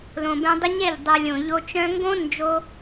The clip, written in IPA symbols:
l õ˨ b ɛ̃˧ dˤ ə˦ ɲ ɛ˦˨ ʎ dˤ ɛ˨ lʲ õ˨ ʎ o˧ t͡ʃ œ̃˦ ŋ ɡ õ˦ n d͡ʒ o˧

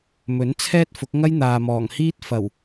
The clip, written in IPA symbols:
m ɵ˨˥ n t͡sʰ ɛː˥ t̚ f ʊ˨˥ k̚ ŋ ɐ˥ j n̪ aː˨ m ɔː˨˩ ŋ h iː˥ t̚ f ɐ˨˩ w

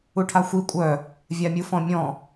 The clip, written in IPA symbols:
u ʈʰ a xʷ i kʷʼ œ | vʲ a mʲ u f ɔ̃ mʲ ɔ̃

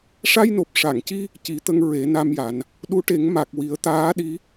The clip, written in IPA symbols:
ʂ a˧ j n o˨˩ p̚ ʂ a˨˩˨ ŋ c i˧ | c i˨˩˦ t̪ ə˧ ŋ ɹ e˨˩˦ n a˧ m j a˨˩˦ n | ɗ u˧˥ ʈ e˨˩˦ ŋ m a˨˩ k̚ w i˨˩˦ ə̯ t̪ aː˧˥ ɗ i˧˥

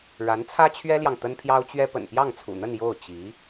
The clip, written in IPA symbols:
ɻ a˧˥ n t͡sʰ ä˥ t͡ɕʰ ɥ ɛ˥ l j ɑ˨ ŋ t̪ ə˥ n pʰ j ɑ˥ ʊ̯ t͡ɕ ɥ ɛ˥ p ə̰˨˩ n p j ɑ˥˩ ŋ t͡sʰ ṵ˨˩ n̪ ə˥˧ n j o˥˩ ʊ̯ t͡ɕ i˧˥

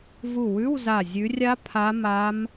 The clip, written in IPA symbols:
v u˧˩ w ʉ˧˥˧ w z a˧˩ zʲ ʉ˨˦ rʲ a˦˥ pʰ a˦˥ m a˦˥ m

